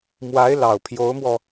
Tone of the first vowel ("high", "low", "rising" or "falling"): rising